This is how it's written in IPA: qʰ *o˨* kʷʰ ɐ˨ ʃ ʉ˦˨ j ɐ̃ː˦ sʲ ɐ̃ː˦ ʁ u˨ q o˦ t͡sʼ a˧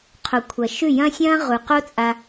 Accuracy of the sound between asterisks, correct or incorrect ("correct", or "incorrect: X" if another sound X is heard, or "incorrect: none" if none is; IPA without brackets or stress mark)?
correct